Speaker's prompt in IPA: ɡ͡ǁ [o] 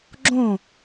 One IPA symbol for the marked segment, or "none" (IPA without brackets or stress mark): õ